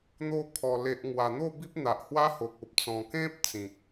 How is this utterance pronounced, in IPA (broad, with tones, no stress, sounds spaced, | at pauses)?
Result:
n̪ o˧ kʰ ɔ˨˩ l e˨ ʔ ŋ w a˨˩ n̪ o˥˧ b i˦ p̚ n̪ a˨ ʔ h w a˦ h o˨ k̚ o˨ p̚ t͡s ɔ̃˨˩ k ẽ˦ p̚ t͡s ĩ˨ k̚